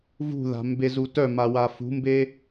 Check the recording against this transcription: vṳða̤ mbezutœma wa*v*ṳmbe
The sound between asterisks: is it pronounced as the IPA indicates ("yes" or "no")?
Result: no